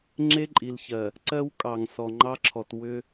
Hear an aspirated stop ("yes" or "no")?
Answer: yes